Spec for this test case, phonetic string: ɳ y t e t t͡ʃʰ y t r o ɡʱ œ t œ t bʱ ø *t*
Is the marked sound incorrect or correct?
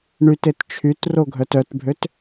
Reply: correct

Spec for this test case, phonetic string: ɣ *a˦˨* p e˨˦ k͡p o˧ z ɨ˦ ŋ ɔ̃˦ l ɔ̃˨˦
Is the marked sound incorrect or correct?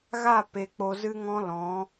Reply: correct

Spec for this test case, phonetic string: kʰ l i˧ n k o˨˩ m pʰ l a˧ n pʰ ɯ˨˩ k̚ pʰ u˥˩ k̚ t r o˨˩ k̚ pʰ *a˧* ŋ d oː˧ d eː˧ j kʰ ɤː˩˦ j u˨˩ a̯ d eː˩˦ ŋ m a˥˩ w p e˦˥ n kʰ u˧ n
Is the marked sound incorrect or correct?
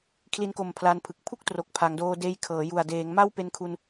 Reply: incorrect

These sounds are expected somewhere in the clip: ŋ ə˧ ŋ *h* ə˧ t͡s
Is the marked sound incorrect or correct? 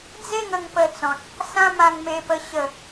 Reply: incorrect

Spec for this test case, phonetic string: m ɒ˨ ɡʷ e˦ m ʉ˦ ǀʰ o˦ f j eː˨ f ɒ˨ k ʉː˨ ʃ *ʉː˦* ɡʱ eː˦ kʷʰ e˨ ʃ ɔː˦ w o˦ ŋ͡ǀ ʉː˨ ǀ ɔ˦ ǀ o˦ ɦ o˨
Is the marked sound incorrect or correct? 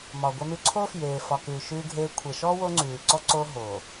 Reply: correct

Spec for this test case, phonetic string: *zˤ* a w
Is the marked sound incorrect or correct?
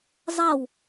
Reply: correct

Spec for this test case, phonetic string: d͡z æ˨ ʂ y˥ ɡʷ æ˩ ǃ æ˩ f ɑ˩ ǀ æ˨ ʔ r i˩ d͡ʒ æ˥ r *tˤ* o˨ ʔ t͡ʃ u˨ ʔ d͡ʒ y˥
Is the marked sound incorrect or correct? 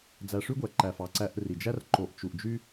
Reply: incorrect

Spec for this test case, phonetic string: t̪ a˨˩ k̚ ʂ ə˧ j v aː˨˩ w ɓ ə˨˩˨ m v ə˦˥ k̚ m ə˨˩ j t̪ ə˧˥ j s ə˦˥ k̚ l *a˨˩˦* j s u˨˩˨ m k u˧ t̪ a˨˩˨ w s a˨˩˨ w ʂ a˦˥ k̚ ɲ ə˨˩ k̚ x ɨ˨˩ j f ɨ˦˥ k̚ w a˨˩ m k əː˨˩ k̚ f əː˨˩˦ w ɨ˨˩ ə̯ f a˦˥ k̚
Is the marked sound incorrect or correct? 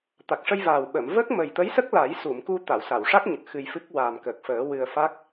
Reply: correct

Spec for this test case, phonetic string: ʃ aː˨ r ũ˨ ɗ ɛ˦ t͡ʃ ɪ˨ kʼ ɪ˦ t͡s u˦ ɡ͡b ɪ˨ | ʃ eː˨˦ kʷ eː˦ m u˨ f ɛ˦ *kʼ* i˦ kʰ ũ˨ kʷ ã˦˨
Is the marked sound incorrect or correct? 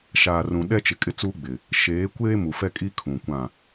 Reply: correct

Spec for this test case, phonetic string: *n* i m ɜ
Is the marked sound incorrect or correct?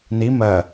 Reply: correct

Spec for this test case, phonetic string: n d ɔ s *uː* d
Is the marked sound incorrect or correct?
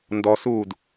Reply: correct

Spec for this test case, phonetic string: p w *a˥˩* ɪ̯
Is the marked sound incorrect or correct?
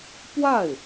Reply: correct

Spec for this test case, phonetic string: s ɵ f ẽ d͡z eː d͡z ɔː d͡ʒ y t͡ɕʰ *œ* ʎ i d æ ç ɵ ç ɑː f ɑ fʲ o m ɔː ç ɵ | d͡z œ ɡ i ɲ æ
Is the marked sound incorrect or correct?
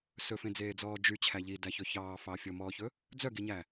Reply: incorrect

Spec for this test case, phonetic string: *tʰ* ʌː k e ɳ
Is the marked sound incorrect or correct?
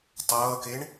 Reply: incorrect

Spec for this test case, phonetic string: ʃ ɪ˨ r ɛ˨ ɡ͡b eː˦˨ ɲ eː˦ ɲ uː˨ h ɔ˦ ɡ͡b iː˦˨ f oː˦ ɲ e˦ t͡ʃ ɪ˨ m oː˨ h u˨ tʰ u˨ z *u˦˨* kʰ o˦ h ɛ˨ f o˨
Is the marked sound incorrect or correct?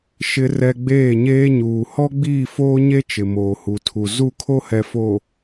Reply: correct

